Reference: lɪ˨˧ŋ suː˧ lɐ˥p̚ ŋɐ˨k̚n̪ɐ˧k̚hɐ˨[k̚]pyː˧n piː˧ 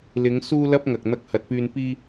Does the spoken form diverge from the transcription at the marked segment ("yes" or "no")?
yes